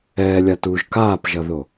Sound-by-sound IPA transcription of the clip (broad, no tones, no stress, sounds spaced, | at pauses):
ɛː lʲ a t uː ʒ k aː p ʒ ʌ ð o